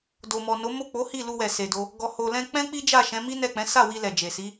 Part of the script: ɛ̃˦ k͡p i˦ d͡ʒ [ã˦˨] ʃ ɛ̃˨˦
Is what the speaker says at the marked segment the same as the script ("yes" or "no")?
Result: no